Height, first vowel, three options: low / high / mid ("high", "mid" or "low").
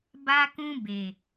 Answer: low